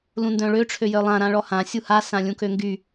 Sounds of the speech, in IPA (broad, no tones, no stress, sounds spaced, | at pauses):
l ũ n d œ̃ ɭ ø ʈ͡ʂʰ ø j œ lˠ ã ɾ ã ɭ ɔ h ã sʲ u h a s ã lʲ ũ k ø ŋ ɡ y